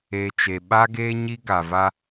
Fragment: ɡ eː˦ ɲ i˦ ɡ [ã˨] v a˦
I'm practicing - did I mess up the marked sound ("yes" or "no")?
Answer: yes